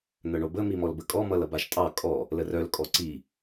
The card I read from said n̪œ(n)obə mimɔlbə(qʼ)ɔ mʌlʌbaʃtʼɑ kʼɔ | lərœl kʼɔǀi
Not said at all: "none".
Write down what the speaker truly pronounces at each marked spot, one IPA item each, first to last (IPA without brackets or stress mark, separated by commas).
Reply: ɳ, kʼ